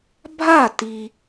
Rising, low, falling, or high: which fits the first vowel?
falling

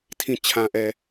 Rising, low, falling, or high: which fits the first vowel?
low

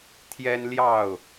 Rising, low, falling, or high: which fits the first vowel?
high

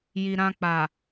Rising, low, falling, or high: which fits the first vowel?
low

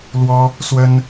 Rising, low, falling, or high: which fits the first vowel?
high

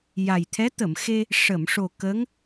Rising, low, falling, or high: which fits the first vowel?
low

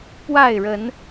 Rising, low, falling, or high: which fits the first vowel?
falling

